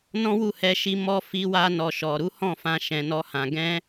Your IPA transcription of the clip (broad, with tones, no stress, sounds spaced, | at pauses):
n ɔ̃˦ w u˦˨ h ɛ˧ ʃ i˧ m ɔ˧ f i˧ w a˧ n ɔ˨ ʃ ɔ˨ ɾ u˨˦ h ɔ̃˦˨ f ã˧ ʃ ɛ̃˨ n ɔ˧ h ã˨ ɡ ɛ̃˧